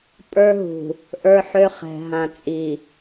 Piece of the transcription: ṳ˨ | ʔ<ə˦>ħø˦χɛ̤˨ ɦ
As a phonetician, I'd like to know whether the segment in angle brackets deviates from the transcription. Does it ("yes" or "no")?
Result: yes